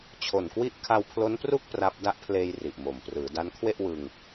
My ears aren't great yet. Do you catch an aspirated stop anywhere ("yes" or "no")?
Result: yes